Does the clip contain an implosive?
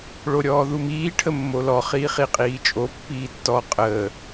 no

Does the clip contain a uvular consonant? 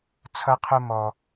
yes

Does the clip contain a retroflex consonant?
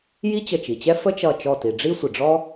yes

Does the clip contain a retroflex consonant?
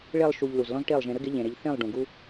yes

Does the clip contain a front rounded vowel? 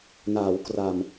no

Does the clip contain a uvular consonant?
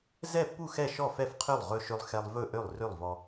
yes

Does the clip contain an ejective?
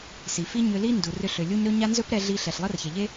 no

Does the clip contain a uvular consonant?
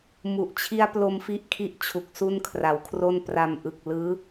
no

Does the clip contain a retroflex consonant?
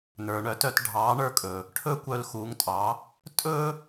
yes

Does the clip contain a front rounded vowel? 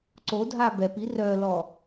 yes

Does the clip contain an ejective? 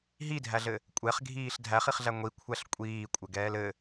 yes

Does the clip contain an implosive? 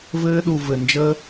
yes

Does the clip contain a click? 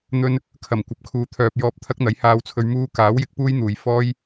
no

